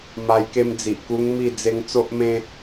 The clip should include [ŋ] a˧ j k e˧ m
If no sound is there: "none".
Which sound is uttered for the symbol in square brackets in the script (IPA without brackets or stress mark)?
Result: m